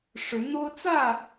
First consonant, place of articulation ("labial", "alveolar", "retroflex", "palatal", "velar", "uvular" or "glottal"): retroflex